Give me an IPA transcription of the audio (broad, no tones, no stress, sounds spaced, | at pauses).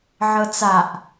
ʕ ɤ t͡s a ʔ